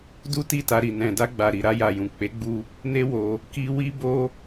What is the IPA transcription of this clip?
du˦ti˦˨ta˧ɾi˨ nɛ̃˨da˧ɡ͡ba˨ɾi˨ ɾa˧ja˨jũ˨ k͡pe˨˦ɡ͡bu˧ | ne˦wo˧ | ki˧ wi˦bo˦

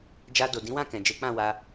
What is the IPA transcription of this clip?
d͡ʒa˧do˨ dĩ˨˦wã˦˨kɛ̃˨ d͡ʒe˨˦k͡pã˦˨wa˧

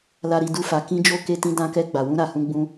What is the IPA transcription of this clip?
la˨ɾi˨ du˧fa˨ kĩ˧ d͡ʒo˧ ke˧tĩ˧ dã˧ kɛ˧ɡ͡ba˨wũ˧ ɾa˨hũ˧ ɡ͡bũ˧

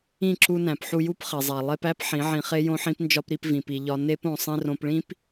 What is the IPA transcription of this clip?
ĩ˦˨ǁu˧næ̃˨p ħu˧ju˦pχe˨zˤæ˨ lˠe˧pæ˦p ħĩ˨˦ʕĩ˧χe˦ jõ˧ħĩ˧pnd͡ʒɒ˧p ɾi˧pvĩ˨pi˨ ʎɒ˧ ne˦põ˧ sˤĩ˧rõ˧pɭĩ˦p

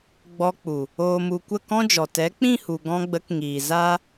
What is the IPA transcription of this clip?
ɡ͡bɔ˧k͡pu˨ | oː˨mu˨ kʷə˦˨kɔ̃˦d͡ʒɔ˨ tɛ˨˦k͡pĩ˦˨hu˨ ɡɔ̃˧ɡ͡bə˨˦k ŋiː˨ zaː˦

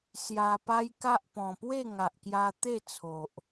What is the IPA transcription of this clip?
sja˧pa˦jka˦ʔ pɔ̃˨˩pwe˥˧ŋa˨ʔkja˧ t̪e˥˧ t͡sʰo˨ʔ

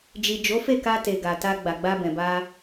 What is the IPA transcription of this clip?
d͡ʒi˨d͡ʒo˨˦fe˦˨ka˧ te˨ɡa˨ ta˧ ɡ͡ba˨ɡ͡ba˧bɛ̃˨ba˧

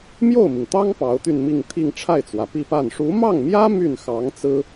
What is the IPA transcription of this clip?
mjo˥˩ʊ̯mi˩ŋt̪ɑ˥ŋ pɑ˧˥ʊ̯t̪y˥˧nmi˥˧ŋt̪ʰi˥˧ŋ ʈ͡ʂʰa˥˩ɪ̯t͡swä˩pi˥˧pa˥˩n ʂu˧˥mɑ˥˩ŋmjä˥ my˥˩nxɑ˧˥ŋt͡sɹ̩˥

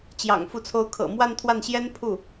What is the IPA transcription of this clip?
t͡ɕjɑ̰˨˩ŋ fu˧˥t͡sʰo˧˥ʊ̯ kʰɤ̰˨˩ mwa˥˧nt̪ʰwa˥˩nɕjɛ˥n pʰu˥˩

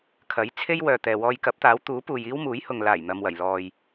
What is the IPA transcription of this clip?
kʰɐ˨˥j t͡sʰe˥jwœː˨t̪ɛː˨wɔː˧j kɐ˨˥p̚t̪aː˨˥wt̪uː˨˥puː˨j iː˥wmuː˨˥jhʊ˨ŋ laː˨˩jn̪ɐ˨mwɐ˨˩j lɔː˨j

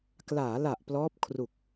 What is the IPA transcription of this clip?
klaː˩˦la˨˩ʔ plɔː˦˥p̚kʰru˨˩k̚

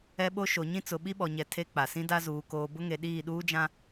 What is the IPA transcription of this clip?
ɛ˦ɓo˦ ʃo˨ɲĩ˦t͡sʊ˨ ɓi˦ɓɔ˨ɲɛ˨ tʰe˦ k͡pa˨ sĩ˦da˦ zuː˨koː˨bʊ˦ŋe˨ ɗiː˦˨ɗuː˦d͡ʒã˦

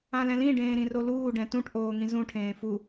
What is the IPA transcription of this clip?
ãlɛ̃lĩ ɖẽːɾĩroluː ɖɛ̃tũʈ ʔoːŋĩzũ ʈʰẽːfu

